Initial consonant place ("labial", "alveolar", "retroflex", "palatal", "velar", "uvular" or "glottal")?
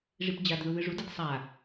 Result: retroflex